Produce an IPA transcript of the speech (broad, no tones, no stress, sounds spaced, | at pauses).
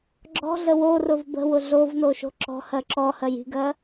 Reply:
ɡ͡ǁ ɔ̤ ɮ ə w o r ʊ v b ə̤ w ʊ ɮ o v n o ʃ o̤ ǁ ɔ̤ h ɜ ǁ ɔ h ɜ j i̤ ɡ ɜ